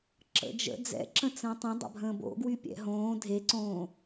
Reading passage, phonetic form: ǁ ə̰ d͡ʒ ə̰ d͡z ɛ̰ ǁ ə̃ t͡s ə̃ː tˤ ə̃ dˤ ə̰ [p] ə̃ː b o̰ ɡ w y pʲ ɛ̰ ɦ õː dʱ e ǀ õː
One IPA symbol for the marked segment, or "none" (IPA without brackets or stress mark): bʱ